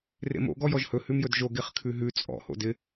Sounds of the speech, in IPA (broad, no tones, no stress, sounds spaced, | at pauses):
r ḛ m o̰ ɡ ɔ j ɔ ʒ h ɵ h ʉ m j ɵ d ʒ o ɡ e χ kʰ ʉ ɦ ʉ t͡sʼ ɔ̰ h o̰ d ɪ